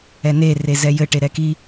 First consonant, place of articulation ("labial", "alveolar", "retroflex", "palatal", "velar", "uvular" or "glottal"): alveolar